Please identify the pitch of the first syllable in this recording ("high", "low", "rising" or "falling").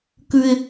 high